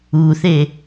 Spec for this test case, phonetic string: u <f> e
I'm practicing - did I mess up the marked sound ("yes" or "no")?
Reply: yes